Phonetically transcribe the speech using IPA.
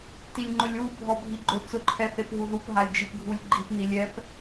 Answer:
t i lʲ ŋ͡ǃ ʊ lʲ w u bʱ ɔ bʱ i ɡ͡ǃ ʊ t͡s ʊ ǃʰ ɛ θ e p ɦ u ð u p ɦ a lʲ d͡ʒ i p ɡʱ u lʲ ɡ͡ǃ i p n i lʲ ɛ p

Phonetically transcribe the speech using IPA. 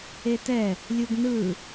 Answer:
e t ɛ | lʲ u ɡ n ɯ

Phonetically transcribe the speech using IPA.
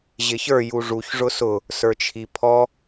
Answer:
ʑ ɪ ç ə˞ j u ʐ u ç ʐ ʊ s ʊ | s ə˞ t͡ʃʰ i pʰ ɔ

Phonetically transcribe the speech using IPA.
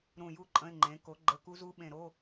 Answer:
ɾ ũ˨˩ j u˧ ǃʼ ə̃˧˥˧ ɪ̯ ŋ͡ǃ ẽ˩˥ k o˩˥ ɡ͡ǃ ə˧˥˧ k u˦˥ z u˦˥ ɓ ẽ˨˩ ɾ o˧˥˧

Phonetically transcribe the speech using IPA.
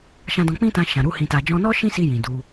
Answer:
ʃ ã˧ d ɔ̃˧ k͡p ĩ˦ t ã˧ ʃ ã˨ ɾ u˨˦ h ĩ˧ t a˧ d͡ʒ ɔ̃˦ n ɔ˦ ʃ ĩ˦ s i˧ j ĩ˨ d u˧

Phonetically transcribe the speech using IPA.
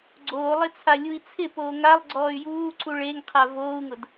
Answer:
ɡ͡ǀ oː lˠ ɪ t͡sʰ a lʲ u i̯ t͡sʰ ɪ p oː ŋ a lˠ ɡ͡ǀ ɔː y̯ j uː ǀ u ɭ e ŋ qʰ a v oː u̯ ŋ ʊ d

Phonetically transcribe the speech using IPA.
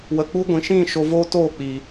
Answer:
w ə˨ k͡p u˦ ɡʷ ĩ˨ ʃ ĩ˦˨ ʃ o˧ v oː˦ t oː˦˨ k͡p i˨

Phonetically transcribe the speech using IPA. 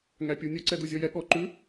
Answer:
ŋ æ pʲ u nʲ ɵ ǀ ɛ d u zʲ ɔ j ɛ ɠ ɔ ǃ ʉ

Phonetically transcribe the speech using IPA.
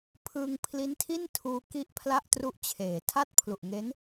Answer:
pʰ ɯː˧ ŋ pʰ l i˦˥ n tʰ i˥˩ n tʰ uː˧ k i˥˩ ʔ pʰ l a˥˩ ʔ t r u˦˥ ʔ t͡ɕʰ eː˩˦ tʰ a˥˩ t̚ pʰ l u˨˩ ʔ ŋ e˦˥ n

